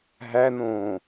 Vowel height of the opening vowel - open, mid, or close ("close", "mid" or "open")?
open